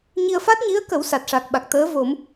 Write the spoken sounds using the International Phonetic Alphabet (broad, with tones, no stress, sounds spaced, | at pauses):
ɲ i˧ ə̯ f a˦˥ t̚ ɲ i˧˥ ə̯ k ə˨˩˦ w s a˨˩ t̚ ʂ a˨˩ k̚ ɓ a˨˩ k̚ t̪ əː˧˥ v o˨˩˦ m